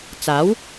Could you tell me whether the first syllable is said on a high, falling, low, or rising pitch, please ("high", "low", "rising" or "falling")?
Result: rising